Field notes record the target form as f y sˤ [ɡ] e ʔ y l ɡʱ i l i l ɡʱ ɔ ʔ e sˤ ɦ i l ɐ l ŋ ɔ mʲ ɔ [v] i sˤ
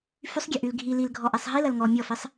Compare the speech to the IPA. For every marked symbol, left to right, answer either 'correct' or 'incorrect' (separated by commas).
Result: incorrect, incorrect